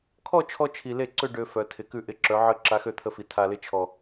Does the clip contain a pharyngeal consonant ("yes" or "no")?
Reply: yes